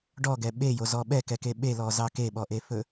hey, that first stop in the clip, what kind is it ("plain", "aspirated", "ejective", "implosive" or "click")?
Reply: plain